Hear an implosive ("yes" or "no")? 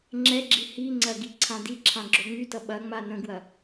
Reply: yes